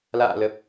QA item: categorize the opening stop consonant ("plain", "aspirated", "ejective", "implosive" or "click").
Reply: plain